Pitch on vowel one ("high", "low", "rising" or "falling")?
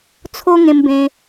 high